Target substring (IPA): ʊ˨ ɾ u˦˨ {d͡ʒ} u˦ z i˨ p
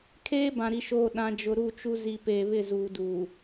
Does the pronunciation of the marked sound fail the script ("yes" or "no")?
yes